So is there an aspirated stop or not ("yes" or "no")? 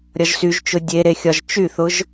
no